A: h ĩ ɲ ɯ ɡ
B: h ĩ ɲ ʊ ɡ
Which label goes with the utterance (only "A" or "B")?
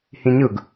A